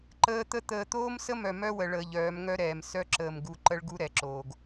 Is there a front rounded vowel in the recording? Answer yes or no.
yes